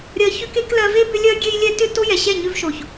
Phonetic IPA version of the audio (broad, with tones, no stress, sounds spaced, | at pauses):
ɾʲ ɜ˧ ç ʏ˦ k e˦ k l ɜ˧ v e˦ b ʏ˦ lʲ ɜ˦ ɡʲ e˦ j lʲ ɛ˦ t ʏ˦˨ t o˦ j ɛ˨ ɕ ɛ˦˨ ɲ ʏ˧ v ʃ o˨ ç